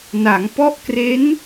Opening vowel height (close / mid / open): open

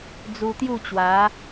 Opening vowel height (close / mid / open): close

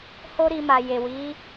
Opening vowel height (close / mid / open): mid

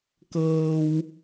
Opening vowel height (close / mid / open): mid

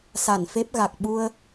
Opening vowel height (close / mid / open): open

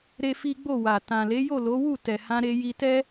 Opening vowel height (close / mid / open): mid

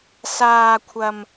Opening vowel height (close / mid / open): open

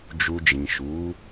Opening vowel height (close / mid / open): close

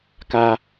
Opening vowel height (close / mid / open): open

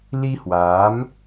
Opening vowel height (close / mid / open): close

